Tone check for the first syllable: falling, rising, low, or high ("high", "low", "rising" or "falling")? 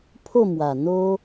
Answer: falling